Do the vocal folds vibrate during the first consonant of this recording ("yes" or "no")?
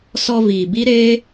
no